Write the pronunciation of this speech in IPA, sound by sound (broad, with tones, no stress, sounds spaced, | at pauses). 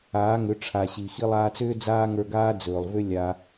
aː˨˦ ŋ ʏ˨˦ ʈ͡ʂʰ a˨ ɕ i˨ x i˧ lˠ aː˧ t͡s ʏː˦ d͡z aː˦ ŋ ə˞˧ ɡ aː˦ d͡z ɵː˨ lˠ v ʏ˦ lʲ a˧